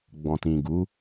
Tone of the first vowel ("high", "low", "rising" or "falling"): low